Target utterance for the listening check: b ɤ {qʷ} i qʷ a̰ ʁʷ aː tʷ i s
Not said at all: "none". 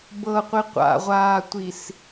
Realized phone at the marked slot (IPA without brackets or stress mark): qʷ